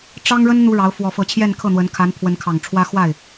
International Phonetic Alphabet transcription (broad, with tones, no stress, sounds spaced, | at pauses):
ʈ͡ʂ ɑ˥ ŋ ɻ ə˥ n n̪ u˥ ɻ ɑ˧˥ ʊ̯ f w ɔ˧˥ f ɤ˧˥ t͡ɕʰ j ɛ˥˧ n kʰ ɤ˥˩ n̪ w ə˧˥ n kʰ a˧˥ n pʰ w ə˧˥ n kʰ ɑ˨˩ ŋ ʈ͡ʂʰ w ä˥ x w a˥˩ ɪ̯